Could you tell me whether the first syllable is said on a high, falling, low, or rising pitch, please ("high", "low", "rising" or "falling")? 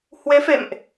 rising